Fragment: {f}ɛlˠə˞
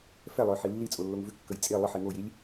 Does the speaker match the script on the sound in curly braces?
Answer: yes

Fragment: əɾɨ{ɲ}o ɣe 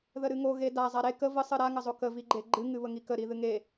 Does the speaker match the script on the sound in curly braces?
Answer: no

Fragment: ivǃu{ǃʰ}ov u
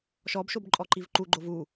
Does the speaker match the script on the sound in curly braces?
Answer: no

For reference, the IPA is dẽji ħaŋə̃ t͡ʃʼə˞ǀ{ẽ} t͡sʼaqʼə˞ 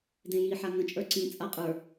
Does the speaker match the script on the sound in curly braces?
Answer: no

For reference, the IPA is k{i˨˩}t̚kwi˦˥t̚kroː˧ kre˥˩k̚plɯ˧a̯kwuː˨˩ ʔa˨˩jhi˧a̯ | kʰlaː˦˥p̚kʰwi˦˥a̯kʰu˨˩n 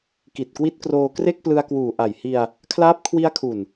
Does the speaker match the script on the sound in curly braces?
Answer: yes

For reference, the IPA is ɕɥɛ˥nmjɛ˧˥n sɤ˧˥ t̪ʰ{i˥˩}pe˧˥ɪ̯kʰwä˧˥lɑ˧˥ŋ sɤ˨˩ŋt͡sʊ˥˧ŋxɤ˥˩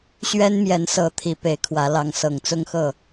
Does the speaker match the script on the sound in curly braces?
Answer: no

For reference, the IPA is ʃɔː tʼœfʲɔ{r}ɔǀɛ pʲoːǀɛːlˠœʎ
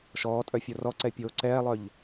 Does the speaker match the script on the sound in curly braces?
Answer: yes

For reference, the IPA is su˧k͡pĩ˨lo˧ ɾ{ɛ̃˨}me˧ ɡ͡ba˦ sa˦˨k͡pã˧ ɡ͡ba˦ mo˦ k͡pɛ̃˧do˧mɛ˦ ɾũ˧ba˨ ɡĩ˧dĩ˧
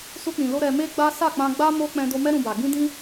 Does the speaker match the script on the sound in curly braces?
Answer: no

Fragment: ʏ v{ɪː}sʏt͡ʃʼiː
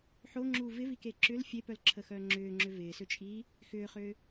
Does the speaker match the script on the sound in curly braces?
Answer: yes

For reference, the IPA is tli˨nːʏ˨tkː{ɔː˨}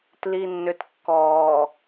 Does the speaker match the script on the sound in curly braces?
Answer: yes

